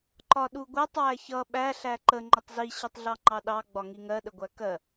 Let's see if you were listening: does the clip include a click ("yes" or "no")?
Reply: yes